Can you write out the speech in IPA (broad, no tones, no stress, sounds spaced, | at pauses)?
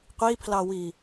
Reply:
qʷ i pʰ l ɑ w i